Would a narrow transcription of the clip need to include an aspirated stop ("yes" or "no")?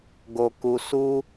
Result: no